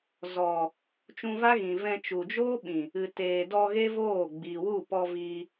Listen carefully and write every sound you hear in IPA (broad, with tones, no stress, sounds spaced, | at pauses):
z ɔ˨ | t͡ʃ ũ˧ v a˦ ɣ ĩ˨ v ɛ̃˧ t͡ʃ u˨ d͡ʒ oː˦ ɓ ĩ˨ | ɨ˨ t eː˨ d ɔ˧ ɣ e˦ v oː˦˨ ɡ͡b iː˨ w u˦˨ p ɔ˧ v iː˧